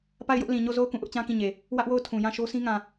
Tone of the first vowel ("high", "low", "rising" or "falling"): falling